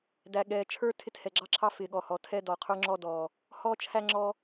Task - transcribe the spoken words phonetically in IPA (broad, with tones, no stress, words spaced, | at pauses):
dæ˨ɠɛː˨ t͡ʃʰə˞˦ tʰɪ˦thɛ˨ɡ͡ǁɑ˦ǁʰɑ˦ fɪː˨ɠɔ˨hɔ˨ tʰɛ˦ dɔː˨qʰə˞˦ŋ͡ǁɔ˦ dɔː˨ | hɔː˦t͡ʃʰæ˦ŋ͡ǁɔ˦